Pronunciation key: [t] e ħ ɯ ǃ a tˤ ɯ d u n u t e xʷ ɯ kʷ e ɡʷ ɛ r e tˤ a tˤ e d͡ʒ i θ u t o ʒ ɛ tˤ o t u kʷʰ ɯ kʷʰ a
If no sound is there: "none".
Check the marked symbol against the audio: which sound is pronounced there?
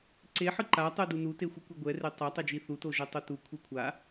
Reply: ǀ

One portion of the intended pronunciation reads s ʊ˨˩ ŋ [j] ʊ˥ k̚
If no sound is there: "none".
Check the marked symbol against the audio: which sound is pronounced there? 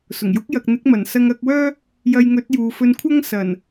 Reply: j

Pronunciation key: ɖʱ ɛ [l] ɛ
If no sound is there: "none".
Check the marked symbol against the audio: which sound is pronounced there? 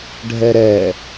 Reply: ɾ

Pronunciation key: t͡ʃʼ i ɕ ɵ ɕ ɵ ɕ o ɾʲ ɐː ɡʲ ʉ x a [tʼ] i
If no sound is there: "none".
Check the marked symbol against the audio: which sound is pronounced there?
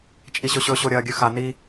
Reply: n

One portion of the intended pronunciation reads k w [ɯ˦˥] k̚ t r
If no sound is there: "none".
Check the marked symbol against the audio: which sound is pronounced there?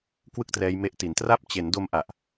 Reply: ɯ˥˩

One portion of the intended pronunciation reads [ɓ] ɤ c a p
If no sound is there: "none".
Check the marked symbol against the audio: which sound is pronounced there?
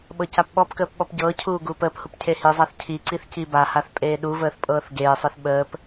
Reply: ɓ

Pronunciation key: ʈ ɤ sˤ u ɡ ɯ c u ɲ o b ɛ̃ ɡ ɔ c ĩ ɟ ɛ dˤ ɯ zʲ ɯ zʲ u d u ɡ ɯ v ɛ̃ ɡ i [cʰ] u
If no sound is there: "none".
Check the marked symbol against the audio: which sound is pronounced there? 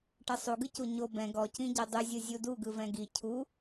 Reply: cʰ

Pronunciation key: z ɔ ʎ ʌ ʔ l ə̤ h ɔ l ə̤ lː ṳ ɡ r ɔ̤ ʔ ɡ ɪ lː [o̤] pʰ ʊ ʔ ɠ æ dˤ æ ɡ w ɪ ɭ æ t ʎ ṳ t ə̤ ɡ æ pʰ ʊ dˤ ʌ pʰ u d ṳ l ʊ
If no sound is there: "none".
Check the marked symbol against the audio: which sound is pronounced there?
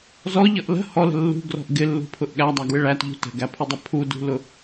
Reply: ṳ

